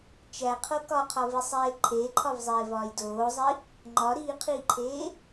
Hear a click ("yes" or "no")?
yes